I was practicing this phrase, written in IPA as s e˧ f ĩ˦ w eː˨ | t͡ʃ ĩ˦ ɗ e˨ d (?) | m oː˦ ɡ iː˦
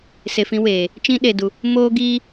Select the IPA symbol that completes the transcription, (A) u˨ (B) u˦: A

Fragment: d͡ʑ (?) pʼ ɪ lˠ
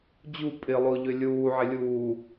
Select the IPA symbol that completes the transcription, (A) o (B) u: B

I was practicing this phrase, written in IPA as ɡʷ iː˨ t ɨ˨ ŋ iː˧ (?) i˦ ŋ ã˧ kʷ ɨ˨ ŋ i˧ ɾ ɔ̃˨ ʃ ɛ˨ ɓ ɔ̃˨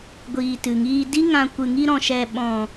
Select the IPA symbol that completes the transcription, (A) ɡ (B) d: B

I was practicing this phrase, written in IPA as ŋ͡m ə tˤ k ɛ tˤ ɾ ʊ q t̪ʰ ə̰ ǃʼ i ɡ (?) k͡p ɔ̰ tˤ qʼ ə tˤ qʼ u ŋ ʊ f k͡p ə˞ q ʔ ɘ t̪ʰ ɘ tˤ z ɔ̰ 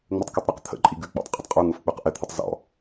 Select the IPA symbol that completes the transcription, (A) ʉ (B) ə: A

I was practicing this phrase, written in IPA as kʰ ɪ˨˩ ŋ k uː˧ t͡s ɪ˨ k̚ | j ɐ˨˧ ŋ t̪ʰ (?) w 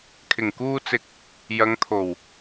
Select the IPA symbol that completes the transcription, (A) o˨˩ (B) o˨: A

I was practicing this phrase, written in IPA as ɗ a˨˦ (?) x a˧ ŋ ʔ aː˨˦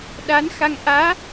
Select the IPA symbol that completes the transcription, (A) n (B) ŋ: A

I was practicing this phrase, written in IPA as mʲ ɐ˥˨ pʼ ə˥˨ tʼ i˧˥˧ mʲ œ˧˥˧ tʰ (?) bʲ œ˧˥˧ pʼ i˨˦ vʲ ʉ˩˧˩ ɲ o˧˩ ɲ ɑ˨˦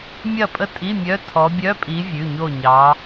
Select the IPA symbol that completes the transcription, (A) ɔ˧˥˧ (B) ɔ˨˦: B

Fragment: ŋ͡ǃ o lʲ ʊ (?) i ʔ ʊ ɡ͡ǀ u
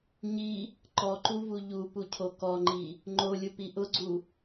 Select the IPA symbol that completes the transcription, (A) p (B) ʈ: A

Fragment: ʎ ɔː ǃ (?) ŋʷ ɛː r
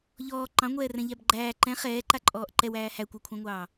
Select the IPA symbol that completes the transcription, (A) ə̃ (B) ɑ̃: B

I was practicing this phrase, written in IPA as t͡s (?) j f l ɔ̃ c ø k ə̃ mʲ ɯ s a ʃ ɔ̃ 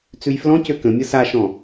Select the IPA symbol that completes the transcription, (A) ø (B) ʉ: B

